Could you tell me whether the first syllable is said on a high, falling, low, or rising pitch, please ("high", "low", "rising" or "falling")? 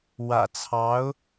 low